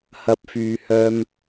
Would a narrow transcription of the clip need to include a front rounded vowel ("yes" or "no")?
yes